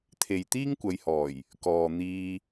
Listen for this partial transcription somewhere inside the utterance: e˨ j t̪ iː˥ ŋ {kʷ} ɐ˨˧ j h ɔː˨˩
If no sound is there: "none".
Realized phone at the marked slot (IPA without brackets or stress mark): kʷ